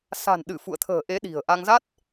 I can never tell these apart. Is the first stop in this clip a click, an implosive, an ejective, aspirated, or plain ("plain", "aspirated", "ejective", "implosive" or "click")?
implosive